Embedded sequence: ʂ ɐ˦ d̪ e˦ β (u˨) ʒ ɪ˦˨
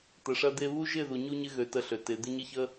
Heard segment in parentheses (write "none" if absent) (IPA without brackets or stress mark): u˦